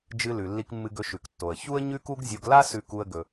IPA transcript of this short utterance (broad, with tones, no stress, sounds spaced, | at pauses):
d͡ʒ ɨ˧ l ʉ˩ lː i˧ k mː ɨ˧ ɡ ɵ˧ ʃ ʉ˩ k tː o˩ ə̯ ç u˥ ə̯ ɲ ʉ˥ k u˥ ɡ zʲ o˧ ɡ l a˥ s ʉ˧ k u˧ ə̯ ɡ ɵ˩